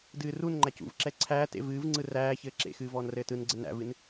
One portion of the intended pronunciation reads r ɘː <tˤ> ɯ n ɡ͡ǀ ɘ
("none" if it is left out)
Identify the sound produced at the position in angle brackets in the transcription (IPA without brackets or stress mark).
t